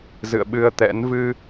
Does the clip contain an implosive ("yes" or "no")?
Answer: yes